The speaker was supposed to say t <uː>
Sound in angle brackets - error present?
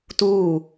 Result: no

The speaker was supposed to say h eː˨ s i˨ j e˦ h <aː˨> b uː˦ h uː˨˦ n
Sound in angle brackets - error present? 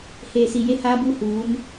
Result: yes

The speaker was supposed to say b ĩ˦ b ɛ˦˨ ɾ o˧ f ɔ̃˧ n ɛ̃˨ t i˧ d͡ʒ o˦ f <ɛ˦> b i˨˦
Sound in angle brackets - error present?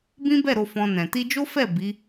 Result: yes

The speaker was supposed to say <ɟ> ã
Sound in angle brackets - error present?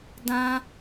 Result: yes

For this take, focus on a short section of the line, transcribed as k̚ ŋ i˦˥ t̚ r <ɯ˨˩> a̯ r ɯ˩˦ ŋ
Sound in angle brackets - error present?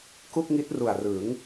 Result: yes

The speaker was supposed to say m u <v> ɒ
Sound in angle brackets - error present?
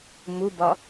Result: yes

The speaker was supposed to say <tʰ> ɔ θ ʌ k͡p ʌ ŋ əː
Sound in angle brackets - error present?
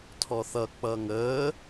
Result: no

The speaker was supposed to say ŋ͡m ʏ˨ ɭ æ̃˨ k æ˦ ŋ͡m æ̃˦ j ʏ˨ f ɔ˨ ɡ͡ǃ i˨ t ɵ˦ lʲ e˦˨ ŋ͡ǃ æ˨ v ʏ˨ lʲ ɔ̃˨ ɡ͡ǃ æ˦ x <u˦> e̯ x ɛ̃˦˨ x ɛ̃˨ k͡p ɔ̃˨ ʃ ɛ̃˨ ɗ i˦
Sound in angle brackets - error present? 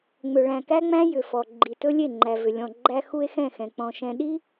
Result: no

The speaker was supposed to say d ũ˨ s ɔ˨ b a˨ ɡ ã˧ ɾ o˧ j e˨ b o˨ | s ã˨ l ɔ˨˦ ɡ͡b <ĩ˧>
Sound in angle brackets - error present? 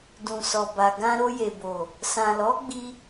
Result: yes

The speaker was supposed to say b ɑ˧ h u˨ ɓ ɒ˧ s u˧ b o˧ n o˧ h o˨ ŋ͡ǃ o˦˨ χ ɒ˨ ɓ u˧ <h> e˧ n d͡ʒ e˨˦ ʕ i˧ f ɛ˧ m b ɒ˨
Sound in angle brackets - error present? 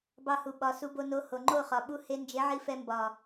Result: no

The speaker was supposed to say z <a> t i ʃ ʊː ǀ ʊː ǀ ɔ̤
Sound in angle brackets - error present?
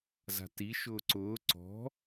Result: yes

